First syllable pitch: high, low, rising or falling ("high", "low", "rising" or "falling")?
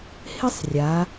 high